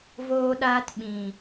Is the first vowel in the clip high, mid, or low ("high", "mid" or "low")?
mid